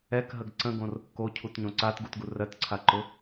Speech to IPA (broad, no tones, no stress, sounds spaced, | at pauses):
ɛ k ɦ ə ɡ ǀ ə̃ ɡ õ r | k o cʰ u t ɲ õ ǀ a t ɡ u t ɡ u r ɜ t ǀʰ a ǃ ʊ